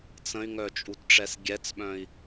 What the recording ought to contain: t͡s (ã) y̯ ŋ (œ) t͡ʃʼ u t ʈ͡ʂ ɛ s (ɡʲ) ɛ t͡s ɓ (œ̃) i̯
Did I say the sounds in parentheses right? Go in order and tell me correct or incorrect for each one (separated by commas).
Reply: incorrect, correct, correct, correct